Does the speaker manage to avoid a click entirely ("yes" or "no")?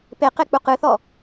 yes